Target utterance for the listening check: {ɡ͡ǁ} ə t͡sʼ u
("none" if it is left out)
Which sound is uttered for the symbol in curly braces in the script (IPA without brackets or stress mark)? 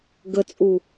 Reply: ɡ